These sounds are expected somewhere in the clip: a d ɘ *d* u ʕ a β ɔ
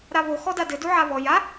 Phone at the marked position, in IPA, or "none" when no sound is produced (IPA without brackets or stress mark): d